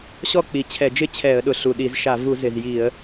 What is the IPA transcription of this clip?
ɕ ɔ˥˧ k͡p i˨˩ t͡ɕʰ ɛ˧˩˧ d͡ʒ ɪ˥˧ t͡ɕʰ ɛ˧˩˧ ə̯ ɗ ʊ˨˩ ɬ u˨˩ ɗ i˧˩˧ z ʃ a˧˩˧ v u˧˩˧ z ɪ˨˩ z j i˧˩˧ ə̯

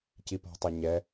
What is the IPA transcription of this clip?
c i p ɔ̤ tˤ a ɲ ɛ

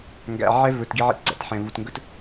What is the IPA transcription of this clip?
ŋ ɡ æ̰˨ ʕ ɛ˦ v ɵ˨ t ɡ i˦ ʕ ḭ˦ t ɡ͡ǀ æ̰˨ t ħ ɛ̃˨ v u˨ t ŋ ɡ ɵ˦ t

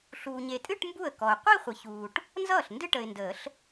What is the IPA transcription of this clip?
ɬ uː˨ ɲ e˨ tʼ ɨ˥˧ ʈ m b u˥˩ ə̯ k ɔ˨ ʊ̯ qʷ i˥˧ χʷ ə˨ ç uː˨ ʈ | n z ʌː˥˩ ɬ n d ɨ˥˧ ʈ ə˨ ɪ̯ n d əː˨˩˦ ɬ

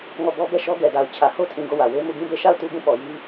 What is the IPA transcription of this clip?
ŋ ɔ˦˨ b ɔ˦ b ɛ˦˨ ʃ ɔ˦ ɡ ɛ˨ d a˨ ʊ̯ t͡ɕʰ ä˨ h o˦ tʰ ĩ˨ ɡ o˦˨ w ä˨ w e˦ m u˦˨ ɡ ĩ˦˨ b e˦˨ ʃ a˦˨ ʊ̯ t u˦ b ũ˦˨ p ɔ˨ j i˦

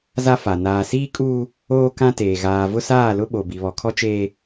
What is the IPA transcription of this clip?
z a˦ f a˨ n aː˨ s iː˦ kʼ uː˦ | oː˦ k ã˦ t eː˨ ɣ aː˨ v ʊ˦ s aː˦˨ l ʊ˦ ɓ o˨ b i˨ β ɔ˨ kʰ ɔ˦ t͡ʃ eː˦

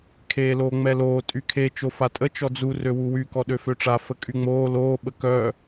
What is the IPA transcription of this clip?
kʰ eː l oː ŋ͡m ɛ l oː tʼ y kʰ e t͡ʃ o f a tʼ ə t͡ʃ ɔ d͡z u r ø w u w y k ɔ ɗ ø f ø ʈ͡ʂ a f ə kʼ y ŋ͡m oː l oː ɓ ə k œː

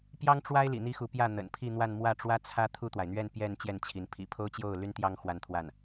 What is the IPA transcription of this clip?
p j ɑ˥ ŋ ʈ͡ʂ w a˥ ɪ̯ l ḭ˨˩ n̪ i˥ x u˧˥ p j ä˥˩ n̪ ə̰˨˩ n pʰ i˥˧ n̪ w a˥˧ n m w ä˥˩ ʈ͡ʂ w ä˥ t͡sʰ ä˥ t̪ʰ u˥˩ t̪ w a˩ ɪ̯ n̪ ɥ ɛ˥˧ n p j ɛ˥˧ n t͡ɕ j ɛ˥˩ n t͡ɕʰ i˧˥ n pʰ ḭ˨˩ pʰ o˥ ʊ̯ t͡ɕ j o˥˩ ʊ̯ l y˥ n t̪ j ɑ˥ ŋ x w a˥˧ n t̪ʰ w a˥˩ n

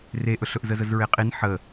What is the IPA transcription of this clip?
r e ʔ ɵ ɬ ɵ ʔ z ə z ə z ɹ e qʼ i n ħ ə

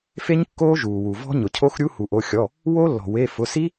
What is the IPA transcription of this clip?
f e˦˥ ɲ kː oː˦˥ ʒ uː˩ w u˩ v ɔ̤˦˥ ɲ ʊ˩ cʰ o˦˥ x ɾʲ u˦˥ h u˩ ʔ o˩˧˩ xʲ ɔ˩˧˩ | w o˦˥ lː ɔ̤˩ w e˩˧˩ f ʊ˩˧˩ s i˦˥

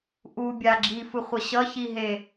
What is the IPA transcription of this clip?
ʔ u bʲ a ɡ͡ǁ i f ɯ χʷ ʌ ɕ ʌ ç i ɦ e

